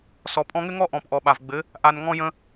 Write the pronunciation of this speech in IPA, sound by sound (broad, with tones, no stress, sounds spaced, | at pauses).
s ɔ˨ pʼ ɔ̃˧ ŋ ɘ˦ ŋ ɔ˦ ʔ ɔ̃˨ p ʔ ɔ˨ ɓ a˨ v ɡ͡b ɘ˨˦ | ʔ a˨ n ŋ ɔ̃˧ j ə̃˧